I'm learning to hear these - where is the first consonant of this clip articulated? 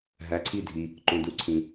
throat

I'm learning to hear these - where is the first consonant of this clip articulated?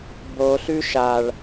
lips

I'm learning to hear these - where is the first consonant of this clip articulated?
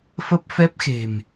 lips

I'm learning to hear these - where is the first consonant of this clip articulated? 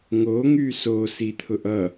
velum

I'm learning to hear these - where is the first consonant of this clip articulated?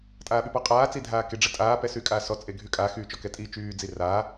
tongue tip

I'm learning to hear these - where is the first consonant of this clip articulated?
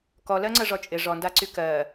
velum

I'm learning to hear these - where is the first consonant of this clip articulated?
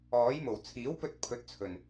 palate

